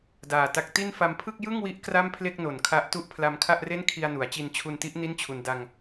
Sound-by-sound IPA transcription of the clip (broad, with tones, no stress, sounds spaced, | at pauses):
d aː˨˩ t a˦˥ k̚ t i˥˩ n f a˧ m pʰ ɯ˥˩ k̚ j ɯ˥˩ ŋ w i˦˥ ʔ k r a˥˩ m pʰ l e˥˩ k̚ n o˨˩ n kʰ a˦˥ ʔ t u˦˥ ʔ pʰ l a˧ m kʰ a˥˩ ʔ r e˥˩ n kʰ i˧ a̯ n u˩˦ a̯ t͡ɕ i˧ n t͡ɕʰ u˧ n t i˦˥ ʔ n i˥˩ n t͡ɕʰ u˧ n d a˧ ŋ